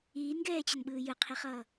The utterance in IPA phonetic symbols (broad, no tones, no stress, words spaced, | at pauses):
iːnɡɛːt͡ɕʌnɓɯː jɯqʰiχʌː